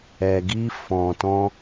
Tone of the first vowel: low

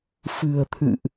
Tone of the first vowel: low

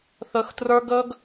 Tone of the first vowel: low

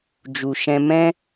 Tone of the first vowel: low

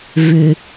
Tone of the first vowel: low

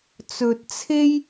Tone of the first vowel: low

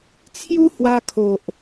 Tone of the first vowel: high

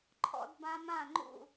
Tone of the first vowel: high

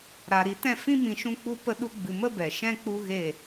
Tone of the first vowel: low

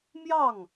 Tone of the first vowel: falling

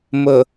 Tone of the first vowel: low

